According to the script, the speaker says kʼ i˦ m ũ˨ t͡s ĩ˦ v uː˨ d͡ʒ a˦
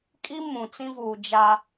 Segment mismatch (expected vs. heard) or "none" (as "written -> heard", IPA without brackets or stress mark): none